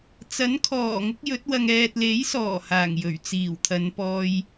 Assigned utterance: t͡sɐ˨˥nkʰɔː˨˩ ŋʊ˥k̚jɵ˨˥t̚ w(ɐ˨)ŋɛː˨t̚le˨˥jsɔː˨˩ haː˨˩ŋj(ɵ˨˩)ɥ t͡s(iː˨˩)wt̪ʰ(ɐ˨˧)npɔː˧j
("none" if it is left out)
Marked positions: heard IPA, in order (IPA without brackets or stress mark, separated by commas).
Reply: ɐ˨, ɵ˨˩, iː˨˩, ɐ˨˧